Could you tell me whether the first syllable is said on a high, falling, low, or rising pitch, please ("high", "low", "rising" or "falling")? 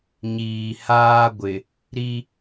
low